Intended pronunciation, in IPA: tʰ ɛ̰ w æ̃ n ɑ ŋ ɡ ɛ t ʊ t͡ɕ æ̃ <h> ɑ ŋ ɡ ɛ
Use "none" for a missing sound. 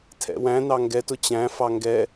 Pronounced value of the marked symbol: f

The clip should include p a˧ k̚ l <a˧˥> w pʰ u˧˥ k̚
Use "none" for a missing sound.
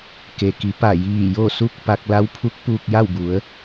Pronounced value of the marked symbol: a˧˥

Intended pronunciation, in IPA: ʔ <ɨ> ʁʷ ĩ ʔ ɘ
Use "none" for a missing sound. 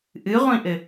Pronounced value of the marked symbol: ɨ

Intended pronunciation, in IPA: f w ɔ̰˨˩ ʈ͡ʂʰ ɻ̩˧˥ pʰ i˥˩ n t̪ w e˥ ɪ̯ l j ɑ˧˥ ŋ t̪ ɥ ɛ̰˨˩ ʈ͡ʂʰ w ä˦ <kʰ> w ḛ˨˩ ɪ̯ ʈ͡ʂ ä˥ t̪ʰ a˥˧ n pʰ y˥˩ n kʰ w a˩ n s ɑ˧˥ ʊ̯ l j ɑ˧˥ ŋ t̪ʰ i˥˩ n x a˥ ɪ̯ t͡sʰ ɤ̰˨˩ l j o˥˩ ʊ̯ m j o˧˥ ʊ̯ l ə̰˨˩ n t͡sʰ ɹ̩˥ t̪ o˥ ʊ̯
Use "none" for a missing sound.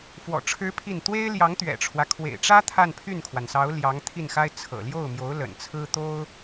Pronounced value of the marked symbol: kʰ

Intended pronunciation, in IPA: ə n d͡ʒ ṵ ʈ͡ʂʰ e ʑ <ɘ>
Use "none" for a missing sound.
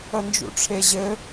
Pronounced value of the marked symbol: ɘ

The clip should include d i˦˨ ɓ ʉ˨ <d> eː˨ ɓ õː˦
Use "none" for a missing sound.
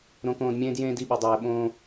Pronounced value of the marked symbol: dˤ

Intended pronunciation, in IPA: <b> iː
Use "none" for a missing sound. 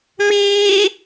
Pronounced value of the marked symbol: m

